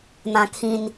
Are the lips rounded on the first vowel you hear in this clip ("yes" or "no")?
no